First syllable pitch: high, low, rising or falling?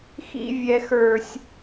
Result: low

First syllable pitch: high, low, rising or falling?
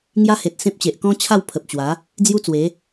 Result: high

